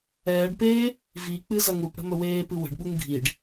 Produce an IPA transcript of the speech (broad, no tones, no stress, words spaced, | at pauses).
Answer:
ɛːɖpeː | vik͡pɨ zɐŋupɽə̤ mɵweːpɨ wə̤ɖɓuŋ ɡʱiɖ